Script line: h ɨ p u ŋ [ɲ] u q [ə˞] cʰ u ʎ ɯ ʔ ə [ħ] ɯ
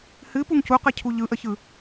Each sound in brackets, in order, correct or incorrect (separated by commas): incorrect, incorrect, incorrect